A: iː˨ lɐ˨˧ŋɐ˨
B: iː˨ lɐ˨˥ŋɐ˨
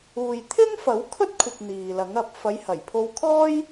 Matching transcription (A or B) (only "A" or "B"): B